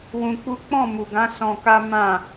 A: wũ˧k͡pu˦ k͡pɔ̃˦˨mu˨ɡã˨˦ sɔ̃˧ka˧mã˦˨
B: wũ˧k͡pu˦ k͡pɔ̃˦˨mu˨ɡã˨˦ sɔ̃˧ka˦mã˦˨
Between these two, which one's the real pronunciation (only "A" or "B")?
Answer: B